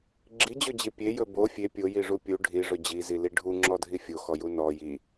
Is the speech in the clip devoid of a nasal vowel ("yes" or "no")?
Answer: yes